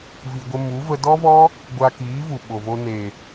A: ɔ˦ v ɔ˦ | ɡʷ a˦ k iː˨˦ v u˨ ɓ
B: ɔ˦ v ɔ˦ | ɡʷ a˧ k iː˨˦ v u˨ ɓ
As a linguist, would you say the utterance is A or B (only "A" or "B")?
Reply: B